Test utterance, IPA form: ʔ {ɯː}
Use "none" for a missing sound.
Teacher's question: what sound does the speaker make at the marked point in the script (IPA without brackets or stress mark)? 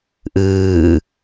ɯː